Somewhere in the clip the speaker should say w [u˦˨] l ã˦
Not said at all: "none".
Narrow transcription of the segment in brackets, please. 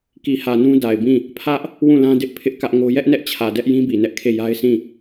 ũ˦˨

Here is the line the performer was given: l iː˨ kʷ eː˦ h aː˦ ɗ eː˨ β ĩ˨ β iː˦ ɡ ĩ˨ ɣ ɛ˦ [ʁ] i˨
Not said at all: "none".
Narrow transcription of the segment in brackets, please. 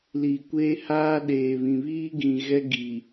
ɡ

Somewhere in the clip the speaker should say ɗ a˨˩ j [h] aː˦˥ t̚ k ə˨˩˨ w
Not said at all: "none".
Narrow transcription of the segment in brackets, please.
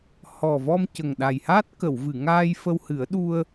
h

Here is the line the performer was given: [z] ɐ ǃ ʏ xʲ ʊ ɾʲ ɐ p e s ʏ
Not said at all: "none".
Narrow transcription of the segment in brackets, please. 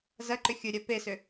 z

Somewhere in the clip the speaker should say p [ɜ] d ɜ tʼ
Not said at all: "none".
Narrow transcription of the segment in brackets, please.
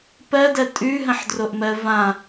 ɜ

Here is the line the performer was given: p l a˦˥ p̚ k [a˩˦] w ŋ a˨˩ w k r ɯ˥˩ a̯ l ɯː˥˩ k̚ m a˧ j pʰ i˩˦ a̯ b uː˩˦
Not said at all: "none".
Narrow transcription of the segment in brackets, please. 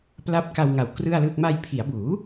a˧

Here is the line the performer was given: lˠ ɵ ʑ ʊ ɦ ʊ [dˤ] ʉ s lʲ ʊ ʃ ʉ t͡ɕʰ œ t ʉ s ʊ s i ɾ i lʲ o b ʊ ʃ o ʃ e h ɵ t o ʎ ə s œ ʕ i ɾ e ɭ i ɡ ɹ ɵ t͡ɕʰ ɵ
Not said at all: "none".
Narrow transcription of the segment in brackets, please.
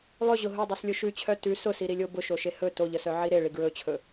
dˤ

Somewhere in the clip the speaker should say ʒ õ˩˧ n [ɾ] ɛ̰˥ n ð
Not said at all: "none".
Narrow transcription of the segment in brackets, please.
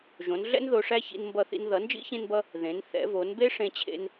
ɮ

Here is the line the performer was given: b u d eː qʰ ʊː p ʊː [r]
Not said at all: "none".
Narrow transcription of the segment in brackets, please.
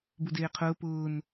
n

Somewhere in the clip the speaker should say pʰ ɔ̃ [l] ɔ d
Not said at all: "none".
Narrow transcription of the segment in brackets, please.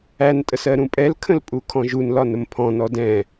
n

